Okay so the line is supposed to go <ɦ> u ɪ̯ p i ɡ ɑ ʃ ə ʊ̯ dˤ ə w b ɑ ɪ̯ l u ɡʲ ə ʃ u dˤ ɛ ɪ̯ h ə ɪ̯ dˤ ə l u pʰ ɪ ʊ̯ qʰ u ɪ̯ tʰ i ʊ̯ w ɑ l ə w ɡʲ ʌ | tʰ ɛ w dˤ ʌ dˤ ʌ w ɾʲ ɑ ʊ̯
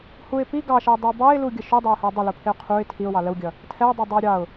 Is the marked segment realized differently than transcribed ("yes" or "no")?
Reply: yes